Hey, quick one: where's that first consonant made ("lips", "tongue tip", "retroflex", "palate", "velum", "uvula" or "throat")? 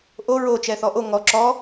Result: throat